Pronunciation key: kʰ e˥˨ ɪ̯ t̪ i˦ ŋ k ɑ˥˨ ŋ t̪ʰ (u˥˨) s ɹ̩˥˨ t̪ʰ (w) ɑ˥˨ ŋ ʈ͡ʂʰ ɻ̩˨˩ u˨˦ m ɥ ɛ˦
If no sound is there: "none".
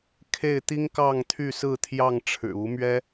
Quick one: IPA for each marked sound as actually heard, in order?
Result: y˥˨, j

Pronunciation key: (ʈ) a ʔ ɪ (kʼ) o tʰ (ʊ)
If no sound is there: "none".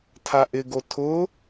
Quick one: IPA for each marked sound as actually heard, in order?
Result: tʰ, ɡ, ʊ

